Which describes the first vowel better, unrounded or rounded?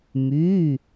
rounded